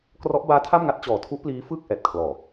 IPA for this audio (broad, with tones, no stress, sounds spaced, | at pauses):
k r ɔ˦˥ ʔ b aː˦˥ tʰ a˥˩ m ŋ a˥˩ t̚ t͡ɕ ɔː˨˩ tʰ u˦˥ ʔ p l iː˦˥ f ɯ˥˩ k̚ ʔ ɛː˨˩ t̚ kʰ l ɔː˨˩